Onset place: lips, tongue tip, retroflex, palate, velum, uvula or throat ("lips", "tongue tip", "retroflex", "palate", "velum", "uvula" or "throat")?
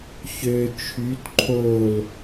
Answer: palate